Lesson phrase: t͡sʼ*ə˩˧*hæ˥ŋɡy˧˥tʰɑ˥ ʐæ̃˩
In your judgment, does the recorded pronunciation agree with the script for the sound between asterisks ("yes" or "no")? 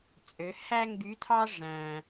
no